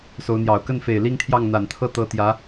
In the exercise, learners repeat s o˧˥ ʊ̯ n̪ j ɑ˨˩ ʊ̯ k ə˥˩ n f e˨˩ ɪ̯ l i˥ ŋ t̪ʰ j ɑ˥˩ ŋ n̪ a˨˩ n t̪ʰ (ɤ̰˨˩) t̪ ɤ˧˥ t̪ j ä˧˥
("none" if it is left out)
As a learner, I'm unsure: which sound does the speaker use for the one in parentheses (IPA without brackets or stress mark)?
ɤ˥